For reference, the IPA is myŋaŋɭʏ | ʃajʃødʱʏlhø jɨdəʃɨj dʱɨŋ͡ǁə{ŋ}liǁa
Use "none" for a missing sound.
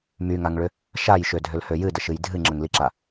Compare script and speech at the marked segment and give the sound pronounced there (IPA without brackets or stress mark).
ŋ